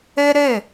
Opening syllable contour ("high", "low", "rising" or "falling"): high